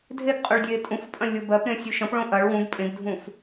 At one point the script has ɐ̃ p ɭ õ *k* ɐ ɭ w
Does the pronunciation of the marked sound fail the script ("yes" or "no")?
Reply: yes